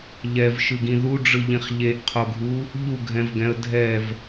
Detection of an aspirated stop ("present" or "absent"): present